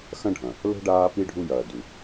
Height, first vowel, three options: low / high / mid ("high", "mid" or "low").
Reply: low